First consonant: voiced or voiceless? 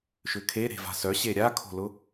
voiceless